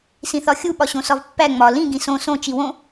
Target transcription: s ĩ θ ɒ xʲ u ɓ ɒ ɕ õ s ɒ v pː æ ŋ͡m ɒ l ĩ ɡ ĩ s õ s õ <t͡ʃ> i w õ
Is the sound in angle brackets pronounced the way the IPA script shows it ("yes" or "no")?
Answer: yes